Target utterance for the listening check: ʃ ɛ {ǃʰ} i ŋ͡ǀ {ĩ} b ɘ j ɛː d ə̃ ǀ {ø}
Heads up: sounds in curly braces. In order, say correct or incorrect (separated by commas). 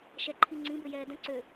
correct, correct, correct